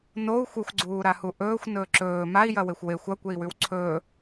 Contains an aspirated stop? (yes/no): yes